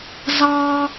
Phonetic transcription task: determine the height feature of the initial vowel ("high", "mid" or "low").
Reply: low